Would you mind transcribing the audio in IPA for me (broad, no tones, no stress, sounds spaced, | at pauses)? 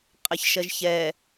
qʼ ə ç ʃ ɜ ʒ ç ɛ